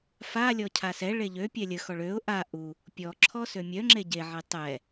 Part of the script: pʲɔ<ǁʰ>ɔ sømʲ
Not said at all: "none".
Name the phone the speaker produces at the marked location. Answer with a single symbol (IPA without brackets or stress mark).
ǁʰ